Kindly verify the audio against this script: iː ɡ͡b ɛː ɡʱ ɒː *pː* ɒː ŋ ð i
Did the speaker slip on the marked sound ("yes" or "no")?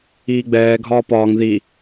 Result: yes